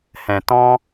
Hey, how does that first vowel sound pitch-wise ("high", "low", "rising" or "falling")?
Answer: low